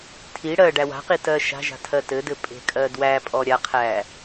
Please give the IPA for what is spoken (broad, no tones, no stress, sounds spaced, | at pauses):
tʰ i ɽ ɜ ɖ æ w a̤ q i t ɜ ʃ a̤ ʒ a̤ tʰ ɜ t ɘ d ɘ pʼ e̤ kʼ ɜ d w æ pʼ ɔ ɾʲ a qʰ æ